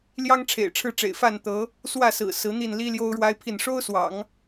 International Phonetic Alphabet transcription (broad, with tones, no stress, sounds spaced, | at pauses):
l j ɑ˥ ŋ ʈ͡ʂʰ ḛ˨˩ ɪ̯ ʈ͡ʂʰ ɻ̩˥˩ ʈ͡ʂ ḛ˨˩ ɪ̯ f a˥˩ n t̪ ɤ˧˥ | s w ä˥˩ s ɹ̩˨˩ s ɹ̩˧˥ n̪ i˥˩ n l i˥ l j o˥ ʊ̯ ɻ w a˥ ɪ̯ pʰ i˥˩ n ʂ o˥ ʊ̯ s w ɑ̰˨˩˦ ŋ